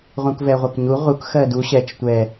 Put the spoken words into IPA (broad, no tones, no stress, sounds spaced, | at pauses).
ʁ ũ k v ɛ ʁʷ ɛ k ɲ u ʁ u k x ɜ d u ɕ ɛ t͡ʃ tʷ ɛ